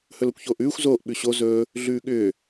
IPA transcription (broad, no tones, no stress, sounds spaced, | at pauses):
h ɵ l o kʷ ç oː ʔ ʉː xʷ z oː ʔ ɓ ʉ ɕ o z ɵː | ɮ ʉː ɠ ʏː